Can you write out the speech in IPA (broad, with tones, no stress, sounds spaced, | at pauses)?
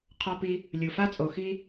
qʰ ɔ˧ p i˧ | lʲ u˨ f a˦ t͡sʼ o˨ x i˦